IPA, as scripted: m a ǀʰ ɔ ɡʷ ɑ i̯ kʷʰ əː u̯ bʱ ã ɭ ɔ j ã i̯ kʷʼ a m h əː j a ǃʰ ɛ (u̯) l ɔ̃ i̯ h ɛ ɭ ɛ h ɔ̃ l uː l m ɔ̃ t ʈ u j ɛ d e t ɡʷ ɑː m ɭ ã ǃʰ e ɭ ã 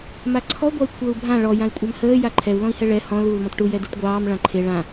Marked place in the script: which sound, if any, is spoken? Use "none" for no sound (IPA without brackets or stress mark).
u̯